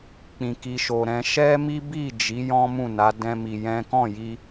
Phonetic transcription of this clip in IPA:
k͡p ĩ˨ k i˨ ʃ o˨ ɾ ɛ̃˧ ʃ ɛ˦ m i˦ b i˦˨ d͡ʒ i˨˦ j ɔ̃˦ m ũ˦˨ n a˨˦ d ɛ̃˦ m i˧ j ɛ̃˦ k ɔ̃˦˨ j i˧

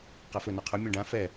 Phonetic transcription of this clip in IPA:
q a f ɵ n ɔ qʰ ɵ mʲ ɔ̃ ɖ ã f ɛ

